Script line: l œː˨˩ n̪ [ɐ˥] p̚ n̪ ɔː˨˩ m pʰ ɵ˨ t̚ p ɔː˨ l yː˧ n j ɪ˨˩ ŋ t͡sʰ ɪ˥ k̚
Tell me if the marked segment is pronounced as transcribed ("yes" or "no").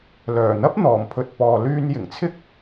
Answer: yes